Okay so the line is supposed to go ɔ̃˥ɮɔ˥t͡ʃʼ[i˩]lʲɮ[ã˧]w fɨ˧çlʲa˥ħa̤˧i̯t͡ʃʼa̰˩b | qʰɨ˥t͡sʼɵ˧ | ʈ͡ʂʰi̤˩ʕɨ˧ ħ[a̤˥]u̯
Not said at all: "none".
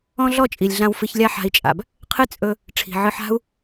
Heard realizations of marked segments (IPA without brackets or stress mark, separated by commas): i˩, ã˧, a̤˥